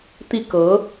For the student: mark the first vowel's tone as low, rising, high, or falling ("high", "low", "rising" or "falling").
falling